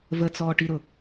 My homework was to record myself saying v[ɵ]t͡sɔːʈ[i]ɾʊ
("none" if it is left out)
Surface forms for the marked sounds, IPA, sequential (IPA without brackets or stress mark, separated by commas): ə, i